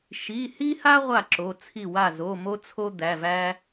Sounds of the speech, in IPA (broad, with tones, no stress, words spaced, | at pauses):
ʃi˩˧˩hi˦ha˦ ʁʷa˥˩ǁo˩˧˩ t͡sʰi˥˩wa˥˩ zo˩˧˩ mo˦t͡sʰo˦ d̪æ˩˧˩væ˦